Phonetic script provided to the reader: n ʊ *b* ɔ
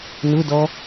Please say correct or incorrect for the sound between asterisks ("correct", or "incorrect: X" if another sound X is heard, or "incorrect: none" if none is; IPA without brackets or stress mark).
incorrect: d